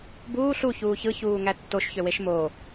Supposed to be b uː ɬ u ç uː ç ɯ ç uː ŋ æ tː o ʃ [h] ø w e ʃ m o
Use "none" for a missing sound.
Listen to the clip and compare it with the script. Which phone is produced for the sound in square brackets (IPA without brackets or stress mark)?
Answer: ç